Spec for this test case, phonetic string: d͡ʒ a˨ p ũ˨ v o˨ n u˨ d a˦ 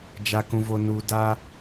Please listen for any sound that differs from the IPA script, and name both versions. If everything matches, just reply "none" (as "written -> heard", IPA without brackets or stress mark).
p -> k